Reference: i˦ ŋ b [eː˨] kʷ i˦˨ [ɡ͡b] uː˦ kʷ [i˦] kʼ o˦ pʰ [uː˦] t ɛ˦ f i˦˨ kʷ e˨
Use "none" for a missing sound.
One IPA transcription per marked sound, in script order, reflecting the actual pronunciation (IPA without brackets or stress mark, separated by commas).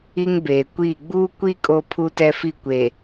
eː˨, ɡ͡b, i˦, u˦